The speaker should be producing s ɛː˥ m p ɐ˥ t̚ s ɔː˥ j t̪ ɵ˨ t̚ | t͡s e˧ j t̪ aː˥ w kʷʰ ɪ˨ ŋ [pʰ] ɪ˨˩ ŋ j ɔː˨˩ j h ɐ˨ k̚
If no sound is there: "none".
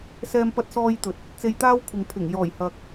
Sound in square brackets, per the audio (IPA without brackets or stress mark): pʰ